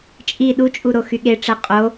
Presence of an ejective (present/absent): present